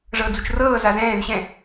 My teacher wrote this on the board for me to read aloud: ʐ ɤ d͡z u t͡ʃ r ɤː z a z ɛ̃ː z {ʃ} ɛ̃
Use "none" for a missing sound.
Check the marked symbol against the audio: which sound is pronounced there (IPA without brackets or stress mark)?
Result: ɕ